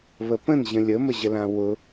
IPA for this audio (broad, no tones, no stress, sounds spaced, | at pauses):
β ə p ə̃ n ʑ ə̃ lʲ ə m ə ʑ ə l ã w ʊ